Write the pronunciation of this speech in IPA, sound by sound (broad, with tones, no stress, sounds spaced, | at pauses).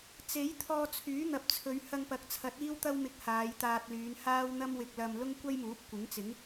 t͡s e˨˥ j t̪ʰ ɔː˧ t͡sʰ yː˨˥ n̪ ɐ˨ p̚ t͡sʰ ɵ˨˧ ɥ h ɐ˧ ŋ p ɐ˨˥ k̚ t͡sʰ ɐ˨˥ t̚ iː˥ w t̪ ɐ˥ w m ɪ˧ k̚ h aː˨˧ j t̪ aː˧ t̚ l yː˨˧ n h aː˥ w n̪ ɐ˥ m w ɪ˧ k̚ l ɐ˧ m l ʊ˥ ŋ kʷ ɐ˥ j m uː˨˥ p̚ kʷ ɪ˨˥ ŋ t͡s ɪ˨˥ ŋ